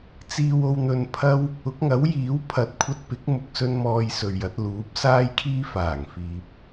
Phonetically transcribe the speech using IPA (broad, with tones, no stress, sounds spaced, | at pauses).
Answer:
t͡s iː˧ w o˧ w n̪ ɵ˧ n pʰ ɐ˥ w | ʊ˨˥ k̚ ŋ ɐ˨˥ w j iː˨˥ w pʰ ɐ˨˥ t̚ kʷʰ ɐ˧ t̚ p ɪ˨˥ k̚ m ʊ˨ k̚ s ɵ˧ n m ɔː˨ j s ɵ˨ ɥ j ɐ˨˥ t̚ l uː˨˥ p̚ s aː˥ j kʰ iː˥ f aː˨˩ ŋ f iː˨ p̚